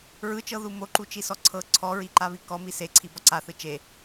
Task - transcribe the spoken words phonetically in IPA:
ɹɯt͡ʃɤ ðumoǃu t͡ʃisɔǀʰɤ ǀʰɔɹiǃa βikɔmi se ǀʰibɔǀaθɯ t͡ʃe

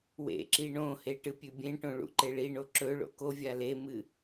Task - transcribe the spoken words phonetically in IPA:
wḛǁi ɳõhe ʈɨpʲʉbʲẽʈõ ɭṵǃeɭiɳo ǁɵɭo̰ kovʲa lemɨ

